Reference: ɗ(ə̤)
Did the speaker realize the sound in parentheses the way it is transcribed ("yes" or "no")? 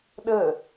no